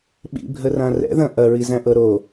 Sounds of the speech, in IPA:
ɓ ḭ bʱ ə r ã r ɛ̰ ð ɐ̃ ʔ ɐ ɹ i z æ̃ ʔ ɤ ɾ o

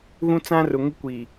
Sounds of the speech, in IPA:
ɣ ũ˦ t͡s ã˦ r ʊ˨ ŋ ɪ˦ kʷ i˨

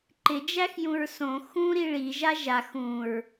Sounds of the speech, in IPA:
ǃ ɪ d͡ʒ æ x j ũ ɹ s õ x ũ ɾ i ɭ i ʒ a ʒ a x ũ ɹ

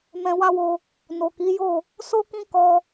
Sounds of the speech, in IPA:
m ɛ̃˧ w a˦ w o˧ | n o˨ k i˨˦ j o˦˨ | s o˦ k ĩ˦ k ɔ˧

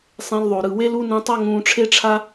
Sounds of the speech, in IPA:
sˤ ẽ˧ l ðˤ o˨ ɾ ɯ˨ w e˦ l u˦ n ũ˧ tˤ a˦ ŋ ũː˧ ʈ͡ʂʰ e˦ ʈ͡ʂʰ a˦

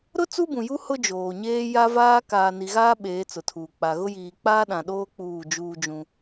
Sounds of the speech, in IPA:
ɾ ʊ˦ t͡s u˦ b ũ˨ j u˦ h ʊ˦ d͡ʒ oː˨ ɲ eː˦ j a˦ v aː˦ k aː˨ n i˨ ɣ aː˦ ɓ eː˨˦ t͡s ʊ˨ tʰ uː˨ k͡p a˨ ɣ ʊ˦ j iː˨ k͡p aː˦ ɗ ã˨ ɗ oː˦ k͡p uː˦˨ d͡ʒ uː˦ d͡ʒ ũ˦

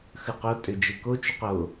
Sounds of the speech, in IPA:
x ɯ q o tʼ ø d͡ʒ ɯ k o t͡ʃ u q o

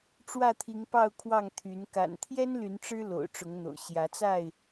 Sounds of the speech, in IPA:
ʈ͡ʂ w ä˥˨ t̪ʰ i˨˦ ŋ p ɑ˥˨ ʊ̯ kʰ w ɑ˥˨ ŋ t̪ʰ y˨˦ n k a̰˨˩ n t̪ʰ j ɛ˦ n l y˨˦ n ʈ͡ʂ ɻ̩˦ l o̰˨˩ ʊ̯ ʈ͡ʂ ʊ˨˦ ŋ n̪ o̰˨˩ ʊ̯ ɕ j ä˨˦ t͡s a˥˨ ɪ̯

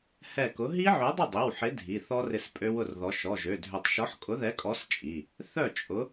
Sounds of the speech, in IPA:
h ɛ˧˩ k ʊ˨˥ ɦ i˦˥ ʕ œ˨˥ dˤ ʊ˥˩ dˤ i˩˧˩ w ħ ɪ˨˥ dʱ i˩˧˩ θ ɔ˦˥ r ɪ˥˩ s pʼ ø˦˥ w ʊ˥˩ r ð ɔ˨˥ ʃ ɔ˩˧˩ ʒ ø˩˧˩ dʱ ø˧˩ tˤ ʃ ɔ˨˥ ħ kʼ ʊ˨˥ ð ɛ˨˥ kʼ ɔ˨˥ s t͡ʃʼ i˩˧˩ | θ œ˥˩ t͡ʃʼ ʊ˨˥

